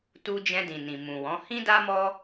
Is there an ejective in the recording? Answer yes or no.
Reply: no